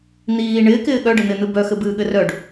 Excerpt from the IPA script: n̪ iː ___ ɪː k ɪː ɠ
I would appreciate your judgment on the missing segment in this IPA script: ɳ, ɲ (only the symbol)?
ɳ